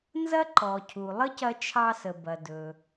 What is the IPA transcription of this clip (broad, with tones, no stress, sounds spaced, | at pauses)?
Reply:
n z ɐ˥ ǃ ɔ˩ cʰ u˩ lˠ ə˥ c ɐ˧ t͡ʃʰ ɑ˧ s ə˩ b ɐ˩ d ɵ˩